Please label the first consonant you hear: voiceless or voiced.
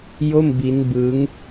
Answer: voiced